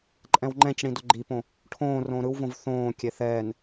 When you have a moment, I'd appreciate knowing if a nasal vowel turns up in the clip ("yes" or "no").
yes